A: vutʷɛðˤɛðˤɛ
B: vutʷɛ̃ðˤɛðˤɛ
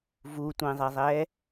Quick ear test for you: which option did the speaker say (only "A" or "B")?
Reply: B